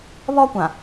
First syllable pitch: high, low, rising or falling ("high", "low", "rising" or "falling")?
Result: high